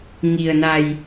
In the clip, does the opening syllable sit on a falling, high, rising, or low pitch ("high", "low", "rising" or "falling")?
low